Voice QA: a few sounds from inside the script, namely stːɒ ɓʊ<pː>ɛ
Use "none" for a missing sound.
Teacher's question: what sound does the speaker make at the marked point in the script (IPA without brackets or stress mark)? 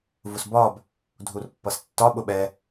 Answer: ɓ